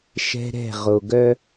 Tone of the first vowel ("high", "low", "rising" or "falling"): high